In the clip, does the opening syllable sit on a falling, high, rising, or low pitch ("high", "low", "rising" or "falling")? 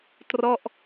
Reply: falling